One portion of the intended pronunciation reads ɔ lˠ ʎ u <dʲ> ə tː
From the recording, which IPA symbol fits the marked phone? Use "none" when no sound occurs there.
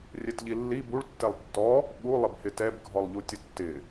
tʲ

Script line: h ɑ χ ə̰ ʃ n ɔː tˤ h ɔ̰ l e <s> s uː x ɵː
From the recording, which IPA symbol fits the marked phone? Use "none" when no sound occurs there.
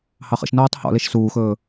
ʃ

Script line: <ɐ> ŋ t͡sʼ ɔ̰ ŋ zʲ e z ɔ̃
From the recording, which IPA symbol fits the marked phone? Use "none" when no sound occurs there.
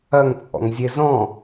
ɐ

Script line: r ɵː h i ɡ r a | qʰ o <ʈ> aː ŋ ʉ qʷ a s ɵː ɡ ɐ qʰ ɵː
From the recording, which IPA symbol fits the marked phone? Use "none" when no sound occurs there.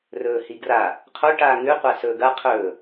ʈ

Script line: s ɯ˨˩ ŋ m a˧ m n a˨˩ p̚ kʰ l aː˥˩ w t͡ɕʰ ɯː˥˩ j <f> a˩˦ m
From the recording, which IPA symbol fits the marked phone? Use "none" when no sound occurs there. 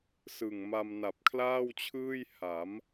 h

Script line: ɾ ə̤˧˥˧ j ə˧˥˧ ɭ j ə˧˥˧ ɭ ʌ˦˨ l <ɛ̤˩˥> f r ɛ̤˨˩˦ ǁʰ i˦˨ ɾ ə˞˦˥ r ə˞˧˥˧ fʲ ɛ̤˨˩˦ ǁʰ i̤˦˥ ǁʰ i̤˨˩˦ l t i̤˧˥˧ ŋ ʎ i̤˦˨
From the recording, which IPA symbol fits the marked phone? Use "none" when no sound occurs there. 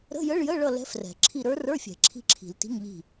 ɛ̤˦˥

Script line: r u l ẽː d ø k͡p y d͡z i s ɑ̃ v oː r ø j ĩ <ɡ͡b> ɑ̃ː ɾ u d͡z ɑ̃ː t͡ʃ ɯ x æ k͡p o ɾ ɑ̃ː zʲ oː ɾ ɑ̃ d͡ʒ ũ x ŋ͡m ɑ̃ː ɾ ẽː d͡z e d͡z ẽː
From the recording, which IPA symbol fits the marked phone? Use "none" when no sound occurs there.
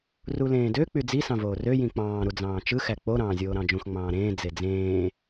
k͡p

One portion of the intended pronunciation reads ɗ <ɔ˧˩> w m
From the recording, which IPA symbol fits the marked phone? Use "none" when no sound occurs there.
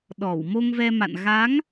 ɔ˧˩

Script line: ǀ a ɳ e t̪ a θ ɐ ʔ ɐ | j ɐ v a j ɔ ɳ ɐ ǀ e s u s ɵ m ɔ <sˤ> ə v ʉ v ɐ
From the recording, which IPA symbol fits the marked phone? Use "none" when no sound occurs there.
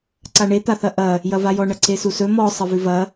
sˤ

